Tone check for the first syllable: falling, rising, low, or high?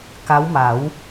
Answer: rising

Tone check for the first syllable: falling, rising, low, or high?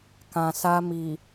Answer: low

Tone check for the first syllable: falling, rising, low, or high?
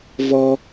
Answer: high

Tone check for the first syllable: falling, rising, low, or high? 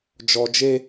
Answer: low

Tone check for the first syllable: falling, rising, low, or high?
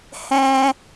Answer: high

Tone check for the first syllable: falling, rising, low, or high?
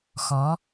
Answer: rising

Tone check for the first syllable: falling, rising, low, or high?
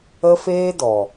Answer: high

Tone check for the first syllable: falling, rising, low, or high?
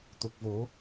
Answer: low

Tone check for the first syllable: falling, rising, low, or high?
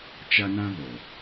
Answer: high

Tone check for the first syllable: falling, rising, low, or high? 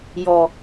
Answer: low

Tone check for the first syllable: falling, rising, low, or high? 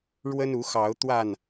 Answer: high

